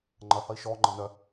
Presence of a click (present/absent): present